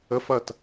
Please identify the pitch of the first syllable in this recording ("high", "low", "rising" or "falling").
high